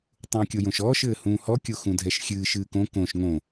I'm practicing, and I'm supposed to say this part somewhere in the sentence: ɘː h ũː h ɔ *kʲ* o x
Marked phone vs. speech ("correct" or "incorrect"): correct